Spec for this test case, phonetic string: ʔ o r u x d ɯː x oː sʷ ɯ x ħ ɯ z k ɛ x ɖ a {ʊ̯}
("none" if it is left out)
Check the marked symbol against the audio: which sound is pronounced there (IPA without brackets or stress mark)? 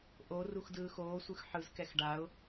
ʊ̯